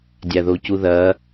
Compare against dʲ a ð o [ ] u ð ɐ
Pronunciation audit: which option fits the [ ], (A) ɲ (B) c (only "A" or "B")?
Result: B